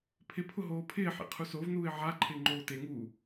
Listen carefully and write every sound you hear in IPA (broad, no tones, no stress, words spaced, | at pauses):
pʰɪ pʰʊɦoːpʰɪːħḛ qʰusovnuːɪ̯ ʕa ǃʰɪːŋ͡ǃoːteŋuː